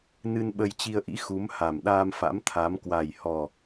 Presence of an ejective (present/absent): absent